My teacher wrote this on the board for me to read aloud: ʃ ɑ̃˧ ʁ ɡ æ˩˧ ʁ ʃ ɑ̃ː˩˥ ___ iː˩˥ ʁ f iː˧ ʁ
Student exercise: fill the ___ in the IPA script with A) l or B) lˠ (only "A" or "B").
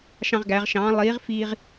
B